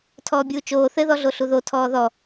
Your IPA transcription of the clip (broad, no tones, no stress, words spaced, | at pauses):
tʰɔːbʲuːt͡ʃoː θɘ ðɔɮoɬuðo tʰɔːðɔ